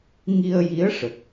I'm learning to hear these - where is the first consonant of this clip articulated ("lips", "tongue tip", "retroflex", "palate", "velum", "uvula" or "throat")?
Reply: velum